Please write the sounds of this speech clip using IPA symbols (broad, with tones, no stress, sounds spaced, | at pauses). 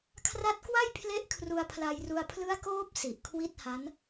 kʰ r a˦˥ t̚ k w a˥˩ j pʰ l e˦˥ ʔ kʰ r u˧ a̯ pʰ l a˧ j r u˧ a̯ pʰ l ɯ˦˥ a̯ k oː˦˥ p̚ s i˨˩ ʔ kʰ w i˥˩ t̚ h a˦˥ n